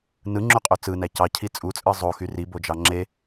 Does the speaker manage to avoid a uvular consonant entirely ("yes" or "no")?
no